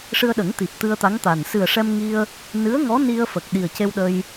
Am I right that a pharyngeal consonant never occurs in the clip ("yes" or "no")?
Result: yes